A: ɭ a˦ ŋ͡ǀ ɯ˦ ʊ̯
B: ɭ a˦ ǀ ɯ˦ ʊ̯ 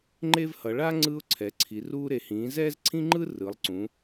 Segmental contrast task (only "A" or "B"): A